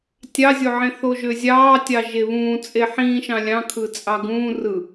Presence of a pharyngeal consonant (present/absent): present